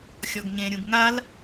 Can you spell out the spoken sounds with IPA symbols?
xʲ ɔ ɡ ɲ ẽ ɾʲ ũ ɡ ŋ a l

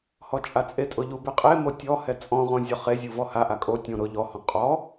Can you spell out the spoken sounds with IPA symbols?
h ɔ t͡ʃʼ a t͡sʼ e tʼ ʊ ʎ u b e qʼ e m o tʲ ɔ h ɛ t͡sʼ ɔ̃ ʁ õ zʲ ɔ χ e zʲ u v ɔ h a ʔ a kʼ o tʲ õ ɾ ʊ ʎ ɔ h ɔ̃ qʼ ɔ

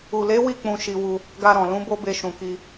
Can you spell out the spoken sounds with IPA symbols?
u˨ l e˨˦ w i˦˨ k͡p ũ˧ ʃ i˧ w u˧ | ɡ a˧ ɾ ɔ̃˨ l ũ˨˦ b o˦ b e˧ ʃ ũ˨ k i˧

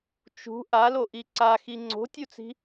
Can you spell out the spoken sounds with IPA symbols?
t͡ʃ ṳ ʔ a l o ʔ i ǀ a x i ŋ͡ǀ o̤ tʲ u t͡s i̤

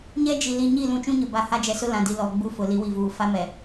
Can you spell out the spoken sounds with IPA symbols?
ɲ ɛ˦ d͡ʒ i˨ l i˨ ɲ i˦˨ l ũ˨˦ t͡ʃ ũ˦ ɲ ʊ˨ b a˨ h a˦ d͡ʒ ɛ˨ s ʊ˦ l ã˨ d i˨ l ɔ˨ ɡ͡b u˦ f ʊ˨ l i˨˦ w i˨ v uː˨ f a˦ m ɛ˨

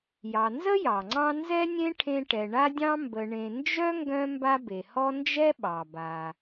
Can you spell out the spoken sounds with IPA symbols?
j ɑ˨ n z ə˥ j ɑ˩ ŋ͡ǀ ɑ̃˦ n z ɛ˥ nʲ ẽ˥ ʈʰ ẽ˦ ʈ ɛ˨ ɳ a˥ dʲ ɑ̃˥ m b ə˨ ɳ ẽ˨ n d͡ʒ œ˥ ŋ ɡ œ̃˦ m b a˦ b e˩ h ɔ˦ n d͡ʒ ɛ˦ ɓ ɑ˩ b a˩

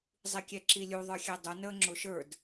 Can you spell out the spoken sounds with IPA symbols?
zˤ i kʲ ɛ ǁ i lʲ u ðˤ ə˞ xʲ ɛ dˤ ʊ n əː ŋ͡ǁ ʊ ʃ ə˞ d

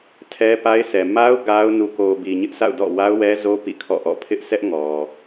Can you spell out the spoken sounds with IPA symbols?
tʰ ɛ˦ p a˦ ɪ̯ sʰ ɛ˨ m a˦ ʊ̯ ɡ a˦ ʊ̯ n u˨ k o˨ b i˨ ɲ ɪ˦ ʔ sʰ a̰˦˨ ʊ̯ d ɔ̰˦˨ w a˦ ʊ̯ w ɛ˦ z o˦ p ḭ˦˨ kʰ ɔ̰˦˨ ʔ ɔ̰˦˨ pʰ ɪ˦ ʔ sʰ ɛ˦ ʔ ŋ ɔ˨

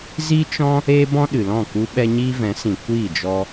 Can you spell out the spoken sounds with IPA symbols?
z i˦ t͡ʃ ɔ̃˦ | eː˦ b ɔ̃˦ ɗ ɨ˨ l ɔ̃˦˨ k u˦ ɓ ɛ˦ ɲ iː˦ v ɛ̃˨˦ s ĩ˨ kʷ iː˦˨ d͡ʒ ɔ˧

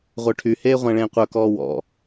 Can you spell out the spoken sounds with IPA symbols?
ʁʷ œ ʈʰ y h eː ʁʷ æ̃ ɭ ẽː qʷ œ k ɔː w ɔ̰

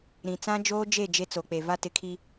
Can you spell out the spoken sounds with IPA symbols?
ɾ ĩ˨ t͡s ã˦ d͡ʒ oː˦ d͡ʒ e˦˨ d͡ʒ e˦ t͡s o˨ k͡p e˨ v a˦ t ɪ˨˦ kʰ i˦

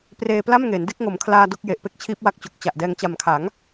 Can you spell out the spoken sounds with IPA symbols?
p r eː˧ p l a˥˩ m ŋ eː˩˦ n d e˥˩ k̚ ŋ o˩˦ m kʰ l aː˧ d o˥˩ k̚ j e˨˩ ʔ p e˥˩ k̚ t͡ɕʰ iː˦˥ p̚ w a˦˥ k̚ t͡ɕ o˨˩ k̚ t͡ɕ a˨˩ ʔ d ɛː˧ ŋ t͡ɕ a˨˩ m kʰ a˩˦ ŋ

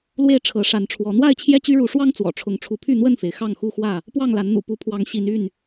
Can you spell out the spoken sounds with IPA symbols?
l w e˥˨ ɪ̯ ʈ͡ʂʰ ɤ˨˦ ʂ a˨˦ n ʈ͡ʂʰ w ɔ˨˦ n̪ w a˥˨ ɪ̯ t͡ɕʰ j ɛ˥˨ t͡ɕ y˦ ɻ u˨˦ ʂ w ɑ˦ ŋ t͡s w ɔ̰˨˩ ʈ͡ʂʰ ʊ˨˦ ŋ ʈ͡ʂʰ u˨˦ pʰ y˥˨ n̪ w ə˥˨ n f e˩ ɪ̯ x ɑ˥˨ ŋ x u˦ x w ä˥˨ | p w ɑ˥˨ ŋ l a˨˦ n n̪ ṵ˨˩ p u˨˦ pʰ w ɑ˨˦ ŋ ɕ i˨˦ n y˥˨ n

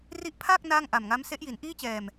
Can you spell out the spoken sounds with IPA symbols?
r i˦˥ ʔ pʰ aː˥˩ k̚ n aː˥˩ ŋ ʔ a˨˩ m ŋ a˦˥ m s e˦˥ ʔ j i˩˦ n ʔ iː˥˩ t͡ɕ ɛː˨˩ m

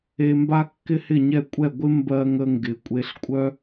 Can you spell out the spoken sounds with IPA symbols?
e˥ m b a˥ kː ɪ˥ h ɪ˥˨ ɲ ɛ˥˨ kʷʼ ɛ˥˨ ɡʷ ɪ˥ m b ɜ˧ ŋ ə˧ ŋ ɡ ɪ˨˩ kʷʼ e˧ ɬ kʷʼ œ˥

